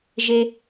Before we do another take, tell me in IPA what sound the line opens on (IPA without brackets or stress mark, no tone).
ʒ